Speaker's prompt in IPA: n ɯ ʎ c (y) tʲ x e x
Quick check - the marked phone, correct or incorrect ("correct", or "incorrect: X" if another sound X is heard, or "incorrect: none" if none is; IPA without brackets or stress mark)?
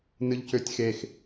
incorrect: ø